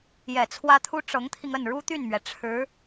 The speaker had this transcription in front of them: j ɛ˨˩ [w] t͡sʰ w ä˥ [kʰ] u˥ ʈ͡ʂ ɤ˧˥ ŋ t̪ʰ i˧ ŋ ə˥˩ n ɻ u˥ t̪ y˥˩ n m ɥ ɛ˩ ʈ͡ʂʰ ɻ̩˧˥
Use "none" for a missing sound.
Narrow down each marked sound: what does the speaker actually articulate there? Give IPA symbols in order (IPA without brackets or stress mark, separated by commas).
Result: none, t̪ʰ